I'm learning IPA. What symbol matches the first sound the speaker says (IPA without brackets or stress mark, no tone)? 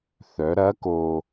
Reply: θ